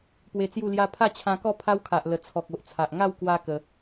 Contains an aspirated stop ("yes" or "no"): yes